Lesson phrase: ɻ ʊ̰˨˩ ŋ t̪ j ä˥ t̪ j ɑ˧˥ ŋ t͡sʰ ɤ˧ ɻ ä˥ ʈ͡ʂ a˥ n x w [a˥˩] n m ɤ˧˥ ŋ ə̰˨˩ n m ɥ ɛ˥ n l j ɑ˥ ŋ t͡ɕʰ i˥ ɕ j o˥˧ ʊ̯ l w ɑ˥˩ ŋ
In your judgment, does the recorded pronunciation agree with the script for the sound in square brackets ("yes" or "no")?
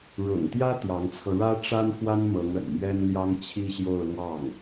no